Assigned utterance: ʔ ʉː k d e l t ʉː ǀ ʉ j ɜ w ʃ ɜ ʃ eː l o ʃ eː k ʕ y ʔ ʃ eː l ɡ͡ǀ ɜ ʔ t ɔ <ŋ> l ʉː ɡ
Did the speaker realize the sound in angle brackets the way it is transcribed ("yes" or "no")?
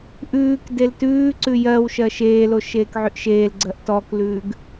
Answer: no